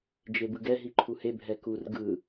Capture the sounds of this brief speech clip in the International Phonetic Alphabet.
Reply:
d͡ʒebɯɡɛ ɦiǃʰuhe bʱɛkur ɡɯ

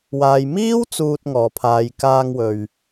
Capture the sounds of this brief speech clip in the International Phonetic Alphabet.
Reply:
waː˨j miː˥w t͡suː˧t̚ ŋɔː˨pʰaː˨˧j kaː˧ŋwɵ˨ɥ

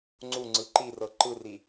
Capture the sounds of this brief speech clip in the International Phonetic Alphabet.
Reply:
ŋ͡ǀu ŋ͡ǀɯǃirɤ ǃɯri

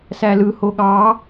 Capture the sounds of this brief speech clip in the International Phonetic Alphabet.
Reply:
sælɯ hoɠɑ

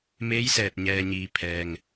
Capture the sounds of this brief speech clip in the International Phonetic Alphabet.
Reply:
meː˧˥jsɛː˧˩t̚ɲɛː˩ɲiː˩ pʰɛː˩ŋ

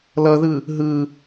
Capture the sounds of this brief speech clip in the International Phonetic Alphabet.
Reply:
lʌðɯ | ɦɯ

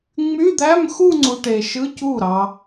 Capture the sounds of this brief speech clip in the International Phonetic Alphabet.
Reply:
ŋ͡my˧˥˧d̪æ˧˥˧mxu˥˧ŋ͡ǀu˨ ʈe˨ʃɯ˧˥˧cu˥˩ ɾɑ˨

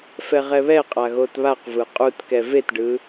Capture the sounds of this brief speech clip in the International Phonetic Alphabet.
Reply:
fɛʁɛβɛqʼa ɣotβaq vɯqʼutkɛ vetɖɯ

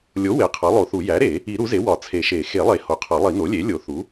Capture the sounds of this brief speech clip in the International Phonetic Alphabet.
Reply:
lʲo˩˥ we˩˥qʰɒ˩˥lˠo˨˩˦θu˨˩˦ jæ˩˥ɾe˨˩˦ | i˨˩˦ ɾu˩˥ze˩˥ wɒ˨˩˦t͡sʰe˨˩˦ʃe˨˩˦ xe˨˩˦lˠe˨˩˦ ho˩˥qʰɒ˨˩˦lˠi˨˩˦ no˩˥lʲe˩˥ lʲo˨˩˦θu˩˥

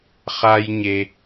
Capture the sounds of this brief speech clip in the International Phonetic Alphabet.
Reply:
χa˦jɲe˧

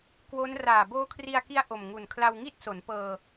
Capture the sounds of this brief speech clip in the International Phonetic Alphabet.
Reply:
kwo˦˥n raː˨˩ boː˦˥kʰri˧a̯ki˦˥a̯ ʔo˨˩mŋu˨˩nkʰla˧wŋi˥˩t̚ so˩˦npɤː˧

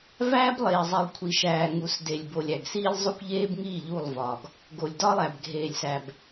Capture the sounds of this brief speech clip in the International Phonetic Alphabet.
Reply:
væː˦blˠeː˨zˤi˨lˠ kʷʰi˨ʃæː˨ ŋu˨˦sde˨lʲbo˨lʲæ˨ɡ siː˦lʲ zˤu˦kʷʎeː˦bŋiː˦˨ ʎu˦˨lˠvɒ˨ɡ | ɡo˨lʲdɒ˦lˠæ˨b ɡʱeː˨lʲsæ˨b

